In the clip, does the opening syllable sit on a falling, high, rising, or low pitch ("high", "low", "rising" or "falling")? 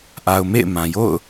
low